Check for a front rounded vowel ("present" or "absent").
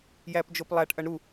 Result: absent